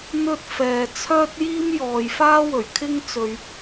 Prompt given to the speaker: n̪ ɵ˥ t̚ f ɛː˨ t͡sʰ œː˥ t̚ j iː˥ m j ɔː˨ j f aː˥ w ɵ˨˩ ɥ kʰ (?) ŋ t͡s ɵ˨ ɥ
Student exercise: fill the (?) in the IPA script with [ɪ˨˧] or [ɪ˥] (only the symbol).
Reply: ɪ˥